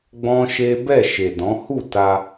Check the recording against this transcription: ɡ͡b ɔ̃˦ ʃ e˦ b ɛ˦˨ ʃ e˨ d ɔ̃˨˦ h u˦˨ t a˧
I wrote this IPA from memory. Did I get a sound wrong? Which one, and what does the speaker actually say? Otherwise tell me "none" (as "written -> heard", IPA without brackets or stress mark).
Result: none